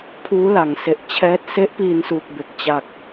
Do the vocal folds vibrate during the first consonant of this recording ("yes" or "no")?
no